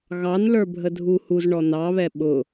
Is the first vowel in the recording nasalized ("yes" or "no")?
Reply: no